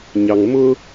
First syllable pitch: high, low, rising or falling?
low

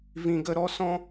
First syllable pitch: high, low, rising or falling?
low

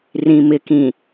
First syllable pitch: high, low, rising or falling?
low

